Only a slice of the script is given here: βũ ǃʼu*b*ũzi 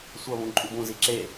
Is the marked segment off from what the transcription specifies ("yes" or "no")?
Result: no